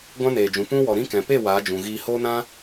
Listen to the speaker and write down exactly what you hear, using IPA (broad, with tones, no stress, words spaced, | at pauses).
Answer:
ɡʷã˦neː˨d͡ʒũ˨ pũ˦ wɔ˨ ɾĩ˦kɛ̃˨ pe˦˨ waː˨˦d͡ʒũ˨ɣiː˧ hoː˦nã˦